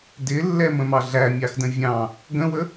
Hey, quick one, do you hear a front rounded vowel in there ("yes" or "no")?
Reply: no